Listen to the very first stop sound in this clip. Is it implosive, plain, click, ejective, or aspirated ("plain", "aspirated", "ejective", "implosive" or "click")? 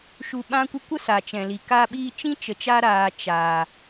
implosive